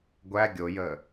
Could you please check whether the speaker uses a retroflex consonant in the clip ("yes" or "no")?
no